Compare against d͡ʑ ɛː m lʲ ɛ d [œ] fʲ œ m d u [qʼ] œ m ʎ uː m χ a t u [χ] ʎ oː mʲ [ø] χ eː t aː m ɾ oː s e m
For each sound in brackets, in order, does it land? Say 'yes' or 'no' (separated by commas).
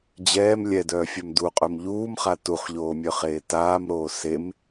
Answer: no, yes, yes, no